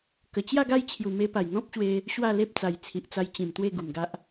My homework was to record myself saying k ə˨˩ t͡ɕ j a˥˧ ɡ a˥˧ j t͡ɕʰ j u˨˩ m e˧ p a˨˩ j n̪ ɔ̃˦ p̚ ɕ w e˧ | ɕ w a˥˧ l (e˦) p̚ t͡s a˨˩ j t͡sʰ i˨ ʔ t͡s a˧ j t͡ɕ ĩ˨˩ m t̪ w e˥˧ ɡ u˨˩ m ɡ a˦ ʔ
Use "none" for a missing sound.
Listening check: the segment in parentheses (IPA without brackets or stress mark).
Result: e˦